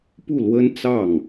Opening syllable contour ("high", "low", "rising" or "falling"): falling